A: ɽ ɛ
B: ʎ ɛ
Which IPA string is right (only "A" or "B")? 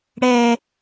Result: A